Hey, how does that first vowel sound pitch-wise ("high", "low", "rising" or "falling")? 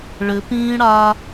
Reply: rising